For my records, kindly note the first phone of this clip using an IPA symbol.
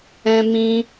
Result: ɛ̃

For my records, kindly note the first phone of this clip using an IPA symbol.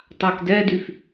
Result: tˤ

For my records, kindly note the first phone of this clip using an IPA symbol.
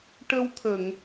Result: ʈ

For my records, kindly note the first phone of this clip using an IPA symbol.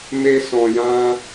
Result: m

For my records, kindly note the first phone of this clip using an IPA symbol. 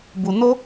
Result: b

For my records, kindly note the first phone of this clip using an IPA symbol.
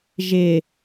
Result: ʒ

